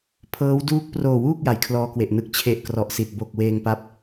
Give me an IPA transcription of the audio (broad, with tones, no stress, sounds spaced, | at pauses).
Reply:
pʰ ɤː˦˥ w d uː˦˥ k̚ p r oː˨˩ w uː˥˩ k̚ j a˩˦ j kʰ l ɔː˧ k w e˨˩ ʔ n ɯ˨˩ k̚ t͡ɕʰ e˨˩ ʔ k r ɔ˨˩ ʔ s i˨˩ t̚ b o˨˩ k̚ w eː˧ ŋ p a˦˥ p̚